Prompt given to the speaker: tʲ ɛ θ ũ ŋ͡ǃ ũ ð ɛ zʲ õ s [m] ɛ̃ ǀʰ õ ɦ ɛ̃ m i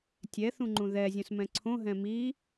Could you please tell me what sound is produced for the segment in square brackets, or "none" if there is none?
m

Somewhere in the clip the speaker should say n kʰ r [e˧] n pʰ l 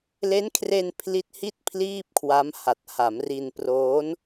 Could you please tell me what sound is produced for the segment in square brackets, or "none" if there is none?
e˧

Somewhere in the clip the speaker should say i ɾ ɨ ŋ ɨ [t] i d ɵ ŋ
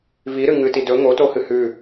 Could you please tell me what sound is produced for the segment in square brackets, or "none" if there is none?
t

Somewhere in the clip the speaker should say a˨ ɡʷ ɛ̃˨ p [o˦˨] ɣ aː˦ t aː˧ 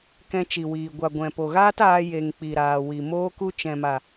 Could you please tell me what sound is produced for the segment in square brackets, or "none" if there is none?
o˨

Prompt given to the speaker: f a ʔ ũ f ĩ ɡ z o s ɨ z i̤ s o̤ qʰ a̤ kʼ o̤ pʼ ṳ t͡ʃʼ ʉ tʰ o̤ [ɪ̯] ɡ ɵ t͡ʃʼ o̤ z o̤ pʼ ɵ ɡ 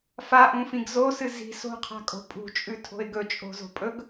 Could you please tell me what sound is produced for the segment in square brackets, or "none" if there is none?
ɪ̯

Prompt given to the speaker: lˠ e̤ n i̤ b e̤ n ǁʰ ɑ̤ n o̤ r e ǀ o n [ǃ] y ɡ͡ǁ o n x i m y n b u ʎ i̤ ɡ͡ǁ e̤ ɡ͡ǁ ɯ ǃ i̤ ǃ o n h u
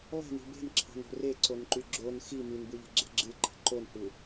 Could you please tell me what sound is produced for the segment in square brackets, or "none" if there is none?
ǃ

